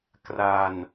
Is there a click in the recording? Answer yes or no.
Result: no